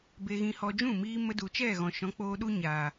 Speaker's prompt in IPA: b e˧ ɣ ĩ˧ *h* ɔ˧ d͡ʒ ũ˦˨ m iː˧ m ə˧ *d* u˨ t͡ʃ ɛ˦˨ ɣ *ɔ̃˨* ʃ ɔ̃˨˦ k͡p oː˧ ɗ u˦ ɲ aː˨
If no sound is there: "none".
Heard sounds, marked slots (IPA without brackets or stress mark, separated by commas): h, d, ɔ̃˨